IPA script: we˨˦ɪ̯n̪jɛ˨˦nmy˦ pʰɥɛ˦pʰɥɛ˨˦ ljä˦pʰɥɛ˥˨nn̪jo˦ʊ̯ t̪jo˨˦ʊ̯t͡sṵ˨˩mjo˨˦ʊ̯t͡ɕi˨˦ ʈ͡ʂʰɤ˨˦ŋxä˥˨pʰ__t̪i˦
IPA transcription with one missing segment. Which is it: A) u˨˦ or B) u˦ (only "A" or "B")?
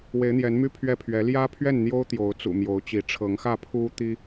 B